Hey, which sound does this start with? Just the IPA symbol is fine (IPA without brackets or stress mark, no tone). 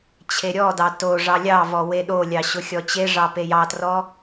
t͡ɕʰ